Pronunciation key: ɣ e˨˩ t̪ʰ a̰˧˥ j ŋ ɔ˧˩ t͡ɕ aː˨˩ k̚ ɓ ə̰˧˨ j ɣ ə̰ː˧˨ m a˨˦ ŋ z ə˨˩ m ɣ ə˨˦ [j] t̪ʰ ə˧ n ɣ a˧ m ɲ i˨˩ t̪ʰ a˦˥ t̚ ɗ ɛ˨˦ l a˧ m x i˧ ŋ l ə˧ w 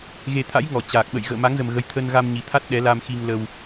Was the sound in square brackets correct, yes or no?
yes